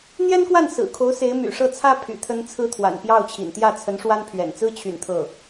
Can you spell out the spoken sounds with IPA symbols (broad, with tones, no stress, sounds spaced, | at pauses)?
n̪ j ɛ˥ n k w a˥˩ n s ɹ̩˨˩ kʰ o˧˥ ʊ̯ s e˧˥ ɪ̯ m y̰˨˩ ʂ ɤ˥˩ t͡sʰ ä˥ pʰ y̰˨˩ t̪ʰ ə˥ n t͡sʰ ɹ̩˥ t̪ʰ w a̰˨˩ n p j ɑ˥˩ ʊ̯ t͡ɕʰ ḭ˨˩ n t̪ j ä˥˩ t͡sʰ ə˧˥ n ʂ w a˥ n pʰ ɥ ɛ̰˨˩ n t͡s ɹ̩˥ t͡ɕʰ y̰˨˩ n t̪ʰ ɤ˥˩